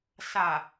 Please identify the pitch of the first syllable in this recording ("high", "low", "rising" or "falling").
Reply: low